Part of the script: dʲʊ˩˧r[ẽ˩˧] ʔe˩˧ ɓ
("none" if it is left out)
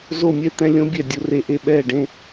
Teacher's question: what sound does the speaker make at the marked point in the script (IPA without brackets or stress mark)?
e˩˧